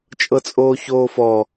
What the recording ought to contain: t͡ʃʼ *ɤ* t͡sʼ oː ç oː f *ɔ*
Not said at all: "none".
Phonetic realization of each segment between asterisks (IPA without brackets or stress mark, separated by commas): ɤ, ɔ